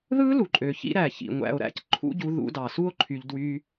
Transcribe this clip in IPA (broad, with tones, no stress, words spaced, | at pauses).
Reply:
ðɯ˦lu˨ǃʼø˨ çḭ˦ ɾæ˨ çḭ˨ŋʷæ̰˧o̯ɾæ̰˦c ǃʰṵ˦ɟu˧ ðṵ˧dɑ˨su˦o̯ ǃʰy˧ʎdwy˦